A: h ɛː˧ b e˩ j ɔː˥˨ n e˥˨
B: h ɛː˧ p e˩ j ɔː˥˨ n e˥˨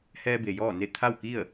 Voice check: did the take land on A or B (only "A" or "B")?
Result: A